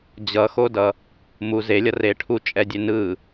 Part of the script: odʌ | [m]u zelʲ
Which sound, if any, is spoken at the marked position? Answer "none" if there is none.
m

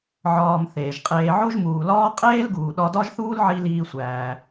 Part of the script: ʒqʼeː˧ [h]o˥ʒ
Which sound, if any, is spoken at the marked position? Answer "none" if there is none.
ʕ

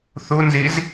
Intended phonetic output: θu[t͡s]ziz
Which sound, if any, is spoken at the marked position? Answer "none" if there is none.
n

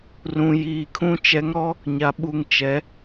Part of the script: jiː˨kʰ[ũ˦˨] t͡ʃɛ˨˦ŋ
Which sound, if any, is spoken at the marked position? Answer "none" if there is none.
ũ˦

